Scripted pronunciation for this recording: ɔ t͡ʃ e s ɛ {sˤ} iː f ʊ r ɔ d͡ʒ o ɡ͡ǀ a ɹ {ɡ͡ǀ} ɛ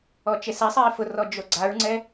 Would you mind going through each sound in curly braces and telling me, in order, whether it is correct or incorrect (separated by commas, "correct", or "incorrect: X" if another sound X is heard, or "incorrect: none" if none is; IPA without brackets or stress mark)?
correct, incorrect: ŋ͡ǀ